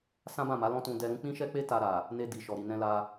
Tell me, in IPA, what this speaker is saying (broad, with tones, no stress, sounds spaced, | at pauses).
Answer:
s ã˦ b ã˦˨ m a˨˦ l ɔ̃˦ t ũ˧ d ɛ˧ ɾ ũ˦ k͡p ĩ˦ ʃ ɛ˦ k͡p e˦ t a˧ ɾ a˨ | n e˧ d i˨ ʃ ɔ˨ ɾ i˨ n ɛ̃˧ l a˧